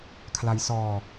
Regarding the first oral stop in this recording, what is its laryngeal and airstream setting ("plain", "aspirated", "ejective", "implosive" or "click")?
aspirated